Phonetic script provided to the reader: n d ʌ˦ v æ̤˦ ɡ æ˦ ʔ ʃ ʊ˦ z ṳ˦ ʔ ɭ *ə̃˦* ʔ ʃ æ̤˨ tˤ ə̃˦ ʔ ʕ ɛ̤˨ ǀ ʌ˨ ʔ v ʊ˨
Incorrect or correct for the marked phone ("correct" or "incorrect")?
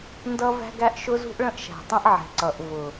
correct